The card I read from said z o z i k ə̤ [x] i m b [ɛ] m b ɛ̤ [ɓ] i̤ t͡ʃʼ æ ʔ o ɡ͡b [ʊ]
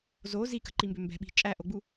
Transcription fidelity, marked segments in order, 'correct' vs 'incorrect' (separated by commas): incorrect, incorrect, correct, incorrect